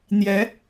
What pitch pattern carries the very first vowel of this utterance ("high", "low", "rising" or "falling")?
rising